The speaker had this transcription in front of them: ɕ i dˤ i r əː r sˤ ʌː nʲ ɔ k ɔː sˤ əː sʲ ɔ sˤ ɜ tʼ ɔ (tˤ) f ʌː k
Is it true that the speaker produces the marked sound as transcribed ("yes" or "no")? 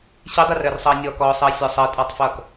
yes